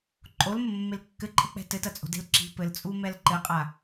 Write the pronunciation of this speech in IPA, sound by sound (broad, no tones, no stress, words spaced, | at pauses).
ǃʼolmɘmːel kːɘǃʼɘk͡pɛ̤ tɘtɐt͡sʼo̤de̤l ǁi̤ pɘlt͡sʼumɛl ǃɘqʼa